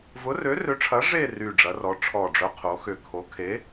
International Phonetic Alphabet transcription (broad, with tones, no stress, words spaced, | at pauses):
vʊ˨˥rø˨˥rø˨˥ʈ͡ʂʰɐ˨˥ ʐe˥˧ry˨˩ ɖ͡ʐɐ˩˧rɔ˩˧ ʈ͡ʂʰɔ˨˩ɖ͡ʐœ˨˥qʰo˩˧xʏ˨˩ kʰo˨˥ kʰe˨˥